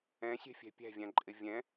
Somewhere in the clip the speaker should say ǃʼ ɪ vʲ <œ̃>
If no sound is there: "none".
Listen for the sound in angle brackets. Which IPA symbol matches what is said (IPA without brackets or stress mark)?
ɛ̃